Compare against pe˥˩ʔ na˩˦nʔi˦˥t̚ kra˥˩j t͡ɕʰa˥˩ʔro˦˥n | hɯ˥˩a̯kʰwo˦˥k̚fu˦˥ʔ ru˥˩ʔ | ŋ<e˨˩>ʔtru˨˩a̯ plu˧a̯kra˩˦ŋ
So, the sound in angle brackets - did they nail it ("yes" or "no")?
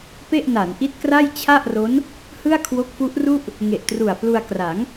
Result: yes